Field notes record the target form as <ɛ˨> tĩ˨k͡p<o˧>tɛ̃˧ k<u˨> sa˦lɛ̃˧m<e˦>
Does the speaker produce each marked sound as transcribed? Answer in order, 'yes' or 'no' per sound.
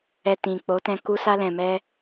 yes, no, no, no

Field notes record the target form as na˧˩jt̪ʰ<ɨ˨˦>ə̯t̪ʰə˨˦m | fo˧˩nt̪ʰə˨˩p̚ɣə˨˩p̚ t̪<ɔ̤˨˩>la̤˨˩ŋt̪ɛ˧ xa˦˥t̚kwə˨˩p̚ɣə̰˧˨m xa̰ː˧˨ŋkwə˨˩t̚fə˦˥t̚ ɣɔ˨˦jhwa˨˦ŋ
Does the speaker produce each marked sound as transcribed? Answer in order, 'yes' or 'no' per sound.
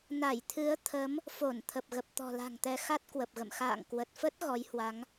yes, yes

